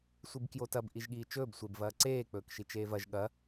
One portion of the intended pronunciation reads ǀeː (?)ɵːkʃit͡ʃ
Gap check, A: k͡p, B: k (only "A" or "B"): A